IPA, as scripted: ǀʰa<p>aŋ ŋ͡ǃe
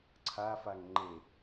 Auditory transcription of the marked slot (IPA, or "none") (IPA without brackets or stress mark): f